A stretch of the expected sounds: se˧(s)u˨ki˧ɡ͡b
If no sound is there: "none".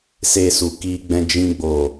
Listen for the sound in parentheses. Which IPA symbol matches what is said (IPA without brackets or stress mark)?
s